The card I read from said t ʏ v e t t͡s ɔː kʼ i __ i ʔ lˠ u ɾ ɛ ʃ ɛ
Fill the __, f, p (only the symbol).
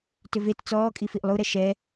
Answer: f